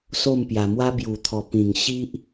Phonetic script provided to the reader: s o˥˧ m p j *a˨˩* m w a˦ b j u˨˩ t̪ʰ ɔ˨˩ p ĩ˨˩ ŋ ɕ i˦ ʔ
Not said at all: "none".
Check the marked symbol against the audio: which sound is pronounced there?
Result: a˧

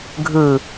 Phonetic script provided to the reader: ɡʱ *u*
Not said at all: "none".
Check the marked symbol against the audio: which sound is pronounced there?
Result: ɯ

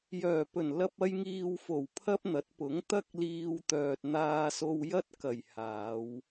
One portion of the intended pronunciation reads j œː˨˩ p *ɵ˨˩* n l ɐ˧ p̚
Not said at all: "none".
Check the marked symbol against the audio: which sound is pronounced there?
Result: ɵ˨˩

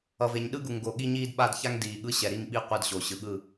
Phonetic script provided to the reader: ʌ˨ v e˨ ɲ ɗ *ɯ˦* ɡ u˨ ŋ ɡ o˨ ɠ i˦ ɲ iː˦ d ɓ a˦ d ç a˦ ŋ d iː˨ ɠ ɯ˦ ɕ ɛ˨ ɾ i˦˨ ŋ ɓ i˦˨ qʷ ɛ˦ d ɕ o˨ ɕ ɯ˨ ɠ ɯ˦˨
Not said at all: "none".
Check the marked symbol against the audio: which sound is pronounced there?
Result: ɯ˦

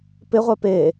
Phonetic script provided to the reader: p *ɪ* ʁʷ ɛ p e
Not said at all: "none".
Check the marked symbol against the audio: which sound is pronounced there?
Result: ɪ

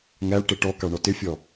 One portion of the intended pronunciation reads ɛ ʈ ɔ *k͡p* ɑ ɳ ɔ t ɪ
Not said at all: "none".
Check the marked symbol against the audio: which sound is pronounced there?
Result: k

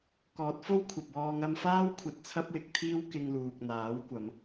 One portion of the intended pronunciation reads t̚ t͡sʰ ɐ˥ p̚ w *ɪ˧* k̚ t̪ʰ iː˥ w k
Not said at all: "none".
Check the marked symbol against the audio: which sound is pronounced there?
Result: ɪ˨˥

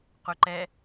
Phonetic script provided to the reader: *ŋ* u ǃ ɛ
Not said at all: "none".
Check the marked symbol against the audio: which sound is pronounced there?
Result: q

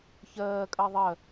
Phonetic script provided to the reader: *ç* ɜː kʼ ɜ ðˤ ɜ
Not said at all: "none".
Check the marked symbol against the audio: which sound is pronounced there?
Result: ç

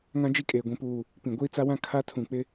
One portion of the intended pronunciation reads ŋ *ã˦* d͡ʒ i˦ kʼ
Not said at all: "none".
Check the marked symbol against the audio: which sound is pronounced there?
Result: ã˦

